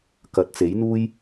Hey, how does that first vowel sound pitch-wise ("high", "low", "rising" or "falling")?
rising